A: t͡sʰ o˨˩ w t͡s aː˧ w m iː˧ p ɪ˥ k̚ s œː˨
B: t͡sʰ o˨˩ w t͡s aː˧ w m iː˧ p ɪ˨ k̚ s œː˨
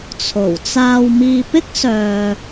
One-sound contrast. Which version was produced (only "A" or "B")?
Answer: A